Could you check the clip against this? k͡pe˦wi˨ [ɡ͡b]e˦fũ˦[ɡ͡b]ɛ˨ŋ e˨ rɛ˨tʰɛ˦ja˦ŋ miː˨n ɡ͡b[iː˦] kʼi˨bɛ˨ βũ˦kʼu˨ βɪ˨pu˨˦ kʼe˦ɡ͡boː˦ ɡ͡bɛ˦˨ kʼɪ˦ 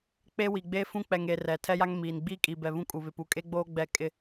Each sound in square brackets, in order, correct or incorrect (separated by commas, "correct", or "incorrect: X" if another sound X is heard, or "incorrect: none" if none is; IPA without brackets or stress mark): correct, incorrect: k͡p, correct